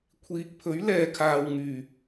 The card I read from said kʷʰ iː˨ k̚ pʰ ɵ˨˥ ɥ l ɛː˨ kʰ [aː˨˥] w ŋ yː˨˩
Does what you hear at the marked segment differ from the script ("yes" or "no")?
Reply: yes